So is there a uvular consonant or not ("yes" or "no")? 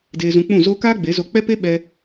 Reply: no